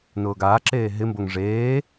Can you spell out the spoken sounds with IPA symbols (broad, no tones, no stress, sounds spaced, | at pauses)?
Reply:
n ʊː ɡ aː ǁ eː ɦ ɪ m b o ŋ ʐ eː